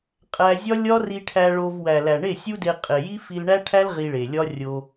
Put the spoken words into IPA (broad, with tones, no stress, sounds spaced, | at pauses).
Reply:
qʼ æ˧ zʲ ɒ˦ lʲ ɒ˦ r i˧ ʈʰ æ˧ ɭ o˧ v w æ˨ l æ˨ ɳ e˦˨ sʲ u˦ d e˧ qʼ e˨ j i˦ f i˧ l ɳ æ˦ ʈʰ æ˦ l ʁ i˧ ɭ e˨ lʲ ɒ˦ rʲ o˧